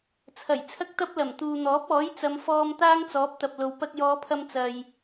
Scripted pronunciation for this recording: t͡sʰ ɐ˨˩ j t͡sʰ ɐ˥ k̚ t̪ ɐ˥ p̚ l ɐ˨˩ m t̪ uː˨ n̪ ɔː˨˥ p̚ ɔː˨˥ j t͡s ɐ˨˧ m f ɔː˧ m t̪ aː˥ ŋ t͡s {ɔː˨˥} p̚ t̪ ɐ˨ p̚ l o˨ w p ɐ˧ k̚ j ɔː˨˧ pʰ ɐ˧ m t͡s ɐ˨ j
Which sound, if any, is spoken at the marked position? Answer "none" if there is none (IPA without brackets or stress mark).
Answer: ɔː˨˥